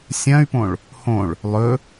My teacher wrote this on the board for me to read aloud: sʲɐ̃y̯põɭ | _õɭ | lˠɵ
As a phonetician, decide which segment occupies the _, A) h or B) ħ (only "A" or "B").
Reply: A